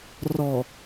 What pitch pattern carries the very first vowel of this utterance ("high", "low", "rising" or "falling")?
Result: low